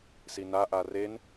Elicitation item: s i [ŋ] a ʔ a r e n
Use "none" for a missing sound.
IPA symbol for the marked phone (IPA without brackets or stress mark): n